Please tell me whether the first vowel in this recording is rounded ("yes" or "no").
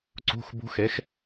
yes